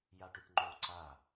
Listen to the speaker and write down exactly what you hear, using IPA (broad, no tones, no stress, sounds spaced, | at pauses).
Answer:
j a ʈ ʉ ʈ ŋ͡ǃ o ǀ a